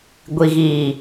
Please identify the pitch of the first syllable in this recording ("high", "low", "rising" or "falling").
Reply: low